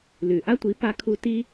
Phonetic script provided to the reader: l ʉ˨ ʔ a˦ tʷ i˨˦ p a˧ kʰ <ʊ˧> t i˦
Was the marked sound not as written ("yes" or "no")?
yes